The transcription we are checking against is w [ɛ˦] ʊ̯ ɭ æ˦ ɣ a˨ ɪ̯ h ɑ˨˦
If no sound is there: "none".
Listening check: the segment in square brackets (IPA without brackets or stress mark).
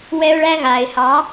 ɛ˦